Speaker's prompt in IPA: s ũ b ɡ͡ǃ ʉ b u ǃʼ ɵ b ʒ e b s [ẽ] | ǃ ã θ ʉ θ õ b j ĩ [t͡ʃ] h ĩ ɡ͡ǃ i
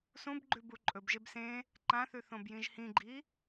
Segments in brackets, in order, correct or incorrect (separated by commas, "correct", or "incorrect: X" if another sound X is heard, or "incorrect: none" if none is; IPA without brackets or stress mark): correct, incorrect: ʒ